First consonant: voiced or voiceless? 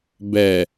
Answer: voiced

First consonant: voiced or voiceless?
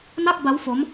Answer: voiced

